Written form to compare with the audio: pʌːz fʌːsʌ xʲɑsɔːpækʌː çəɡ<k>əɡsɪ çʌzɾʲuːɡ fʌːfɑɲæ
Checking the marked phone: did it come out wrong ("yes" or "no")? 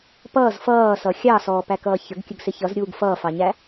yes